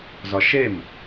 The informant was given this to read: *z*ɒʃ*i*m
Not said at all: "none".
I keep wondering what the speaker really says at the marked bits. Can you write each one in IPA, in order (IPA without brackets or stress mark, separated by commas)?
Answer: z, e